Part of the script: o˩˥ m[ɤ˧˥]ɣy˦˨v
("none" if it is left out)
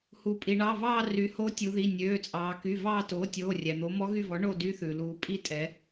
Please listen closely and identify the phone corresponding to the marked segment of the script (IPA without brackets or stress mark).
ɔ˧˥